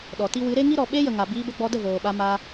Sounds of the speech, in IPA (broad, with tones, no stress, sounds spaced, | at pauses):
ɗ ɔ˨ t i˦ w ɨ˨˦ ɾ e˦ ŋ i˦ ɾ ɔ˨ ɓ e˦ j ə˨ ŋ a˨ b iː˧ b ə˧ ɡ͡b ɔ˧ d ə˦˨ v oː˨ ɓ a˧ m a˧